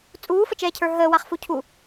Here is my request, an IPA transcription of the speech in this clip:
t͡sʼ uː f ə t͡ʃ ɛː cʰ ə˞ ɦ əː w a χ f u cʰ u

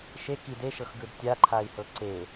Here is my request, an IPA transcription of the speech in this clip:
ʃ e k i d e ʃ ɤ x ɡ ɯ d tʲ a ǃʰ a i̯ h ɤ ǀ e

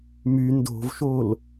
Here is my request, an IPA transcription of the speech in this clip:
m y n d o̤ v ʃ o l

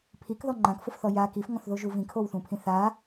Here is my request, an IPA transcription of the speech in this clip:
pʰ i k ð ɔ ŋ͡ǃ ã k f ʊ f θ ɔ j a k i f ŋ ɔ̃ θ ð o ʒ u v ĩ kʰ o w θ ũ pʰ ĩ θ a

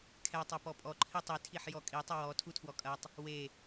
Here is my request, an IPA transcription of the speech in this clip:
kʰ ɛ tˤ ɛ p ɔ pʼ ɔ ǃʰ i tˤ i tʰ i ħ j ɔ kʼ i tˤ ɘ w ɔ tʰ u tʰ w ɔ kʼ ɐ tˤ | w e

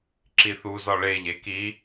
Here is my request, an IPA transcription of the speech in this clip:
ǁ i θ u z ɒ ɭ e ʎ e k i

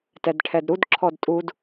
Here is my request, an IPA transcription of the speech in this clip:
t ɛ d ʈʰ ɛ d ɾ u d ǁʰ ɔ d tʼ u d

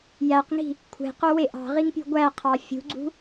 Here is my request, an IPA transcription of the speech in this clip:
j æ q ŋ i̤ | kʷʰ e̤ q o w e ʔ ɑ̤ ʁ i ŋ pʲ ṳ ɡʷ æ qʰ ɑ fʲ ṳ ɡ͡ǀ ṳ

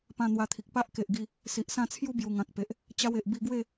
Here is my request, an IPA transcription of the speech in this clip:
p ã˧ n̪ w a˧ t̪ʰ i˨ k̚ p a˦ ʔ k e˨ ʔ ɡ i˧ | s i˨ ʔ s ã˥˧ t͡sʰ j u˦ b j u˨˩ ŋ ã˨ k̚ p e˨ ʔ | t͡ɕ a˦ w e˨ ʔ b i˧ ɡ w e˥˧

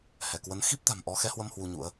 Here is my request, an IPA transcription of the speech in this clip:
h ɛ˧˩ k w ə˨˦ n x i˦˥ p̚ t̪ a̤˨˩ m ʔ ɔ˨˦ x ɛ˨˦ h w ə˧ m h w u˧ ɲ ṵ˧˥ ə̯

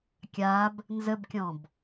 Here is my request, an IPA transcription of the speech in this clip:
kʲ a b | n z ə b kʲ ɔ̃ b

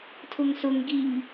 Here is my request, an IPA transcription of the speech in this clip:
tʰ ʊ ŋ s ʊ ŋ ɡ i ŋ

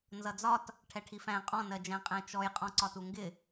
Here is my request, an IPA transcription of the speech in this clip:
n z ʌ d͡z ɒ t | ʈʰ ɛ ʈʰ i f æ̃ qʼ ɔ̃ n ɜ d͡ʒ æ̃ qʼ æ̃ t͡ʃ ɔ j qʼ ɔ̃ ǀ ɒ t u ŋ ɡ ɪ

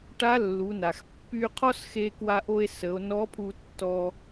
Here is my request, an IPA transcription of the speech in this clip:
ʈ a˧˥ lː u˩˧ n a˩ x pː y˧ qʰ ɔ˥ s x e˧ k w a˧ ʔ o˧ e̯ s ə˩˧ o̯ n ɔ˧˥ pʰ u˧ tː ɔ˧

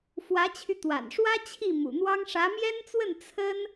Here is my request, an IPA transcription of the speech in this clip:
f w ä˧˥ t͡ɕʰ y˧ t̪ w a̰˨˩ n ʂ w ä˥ t͡ɕʰ i˥˩ m ṵ˨˩ n̪ w ɑ˥ ŋ ʂ ä˧˥ m j ɛ˥ n t͡s w ə˥˩ n t͡sʰ ə˥ n

